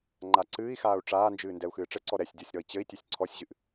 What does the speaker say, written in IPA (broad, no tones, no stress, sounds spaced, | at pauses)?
ŋ͡ǃ a ǀ ɨː i̯ x aː u̯ ʈ͡ʂ aː n d͡ʒ ɨː n d ɛ u̯ x ɨː ʈ͡ʂ ɘ ǀ ɔ ɾ ɛ sʲ dʲ ɔ sʲ ɾ ɔ i̯ t͡ɕ ɘ i̯ tʲ ɵ sʲ ǀʰ ɔ sʲ ʑ ɨ ʔ